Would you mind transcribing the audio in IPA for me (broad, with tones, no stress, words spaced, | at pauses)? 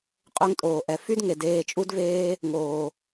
qʼø˧ŋtʼoː˨ʔɛ˨ fy˦d ŋe˨deː˧t͡ʃʼu˦dveː˦ | ŋoː˨